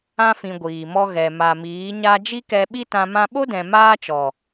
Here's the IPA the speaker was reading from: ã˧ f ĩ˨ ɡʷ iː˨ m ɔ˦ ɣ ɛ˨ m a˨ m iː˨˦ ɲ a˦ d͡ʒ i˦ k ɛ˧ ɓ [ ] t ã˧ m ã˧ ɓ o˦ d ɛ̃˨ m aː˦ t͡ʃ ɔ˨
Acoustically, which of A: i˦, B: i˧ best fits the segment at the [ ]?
A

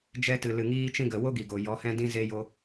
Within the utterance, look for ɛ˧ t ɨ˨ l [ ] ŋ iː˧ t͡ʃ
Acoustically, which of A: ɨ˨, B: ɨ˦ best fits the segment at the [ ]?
A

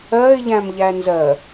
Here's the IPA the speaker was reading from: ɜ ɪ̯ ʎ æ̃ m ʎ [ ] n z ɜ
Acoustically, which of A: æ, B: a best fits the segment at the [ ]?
A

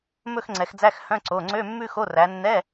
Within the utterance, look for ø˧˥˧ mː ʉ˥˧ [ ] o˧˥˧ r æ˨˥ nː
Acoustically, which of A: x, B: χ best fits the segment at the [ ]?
A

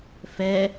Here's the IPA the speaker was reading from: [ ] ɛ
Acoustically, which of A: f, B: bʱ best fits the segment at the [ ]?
A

